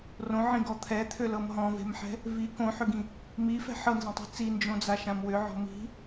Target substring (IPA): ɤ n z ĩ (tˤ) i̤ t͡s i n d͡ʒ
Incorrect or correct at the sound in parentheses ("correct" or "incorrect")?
correct